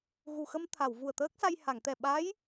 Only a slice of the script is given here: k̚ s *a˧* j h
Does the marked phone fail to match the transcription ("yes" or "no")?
no